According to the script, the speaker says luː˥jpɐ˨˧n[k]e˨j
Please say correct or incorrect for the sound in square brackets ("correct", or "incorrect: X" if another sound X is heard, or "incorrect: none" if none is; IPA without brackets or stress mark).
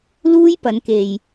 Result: correct